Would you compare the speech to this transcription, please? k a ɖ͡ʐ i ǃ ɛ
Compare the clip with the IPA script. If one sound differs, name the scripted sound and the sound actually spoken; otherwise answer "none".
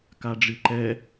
none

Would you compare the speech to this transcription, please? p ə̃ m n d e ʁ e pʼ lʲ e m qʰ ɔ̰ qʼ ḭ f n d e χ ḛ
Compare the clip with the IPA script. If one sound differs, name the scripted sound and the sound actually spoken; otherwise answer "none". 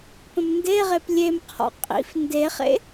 pʼ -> p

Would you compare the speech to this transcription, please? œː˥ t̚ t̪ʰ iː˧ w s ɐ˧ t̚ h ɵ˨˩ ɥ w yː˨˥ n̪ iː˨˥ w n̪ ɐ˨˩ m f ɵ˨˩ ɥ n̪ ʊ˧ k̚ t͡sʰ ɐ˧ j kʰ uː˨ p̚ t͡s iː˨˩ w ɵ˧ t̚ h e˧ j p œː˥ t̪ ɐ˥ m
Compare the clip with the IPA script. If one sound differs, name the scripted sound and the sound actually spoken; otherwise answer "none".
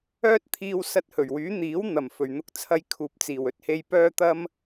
none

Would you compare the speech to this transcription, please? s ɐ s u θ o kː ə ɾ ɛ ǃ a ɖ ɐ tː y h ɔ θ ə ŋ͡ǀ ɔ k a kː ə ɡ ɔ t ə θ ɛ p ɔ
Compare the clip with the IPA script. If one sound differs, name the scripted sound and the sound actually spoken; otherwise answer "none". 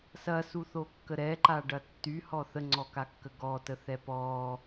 none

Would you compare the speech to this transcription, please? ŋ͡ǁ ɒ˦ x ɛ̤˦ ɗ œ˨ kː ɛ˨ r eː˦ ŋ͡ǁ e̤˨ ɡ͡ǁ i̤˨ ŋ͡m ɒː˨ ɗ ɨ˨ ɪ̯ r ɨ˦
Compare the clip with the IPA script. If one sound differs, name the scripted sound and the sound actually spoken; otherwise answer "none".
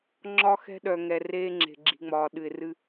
kː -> ŋ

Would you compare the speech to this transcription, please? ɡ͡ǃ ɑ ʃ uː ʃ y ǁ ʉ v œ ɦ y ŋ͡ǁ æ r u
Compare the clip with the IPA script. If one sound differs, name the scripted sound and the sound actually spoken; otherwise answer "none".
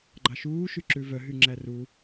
none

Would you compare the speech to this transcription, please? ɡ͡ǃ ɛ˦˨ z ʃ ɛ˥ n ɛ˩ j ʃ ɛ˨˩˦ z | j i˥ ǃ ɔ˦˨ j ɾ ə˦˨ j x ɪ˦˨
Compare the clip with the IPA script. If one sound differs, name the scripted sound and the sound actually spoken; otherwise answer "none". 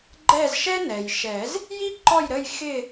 none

